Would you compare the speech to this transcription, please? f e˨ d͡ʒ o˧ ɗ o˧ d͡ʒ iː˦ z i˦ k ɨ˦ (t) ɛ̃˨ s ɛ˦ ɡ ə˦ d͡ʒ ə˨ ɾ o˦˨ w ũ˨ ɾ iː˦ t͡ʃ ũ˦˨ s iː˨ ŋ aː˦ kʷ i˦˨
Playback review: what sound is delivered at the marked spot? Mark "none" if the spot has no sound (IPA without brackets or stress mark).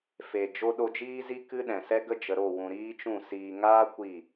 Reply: ɗ